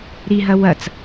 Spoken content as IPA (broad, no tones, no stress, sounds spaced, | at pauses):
ɾ i ɦ ɐ w ɐ t͡s